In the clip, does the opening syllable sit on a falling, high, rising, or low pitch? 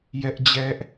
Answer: high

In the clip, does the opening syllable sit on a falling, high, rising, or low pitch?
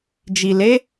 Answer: low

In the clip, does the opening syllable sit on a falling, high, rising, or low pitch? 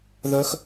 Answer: high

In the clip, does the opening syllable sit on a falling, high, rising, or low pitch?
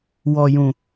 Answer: low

